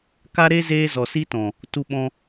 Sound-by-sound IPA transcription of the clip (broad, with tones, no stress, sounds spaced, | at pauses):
k a˦ ɾ e˦ z eː˦ z ɔ˨ s i˦ t ɔ̃˨ | t u˧ ɓ ɔ̃˧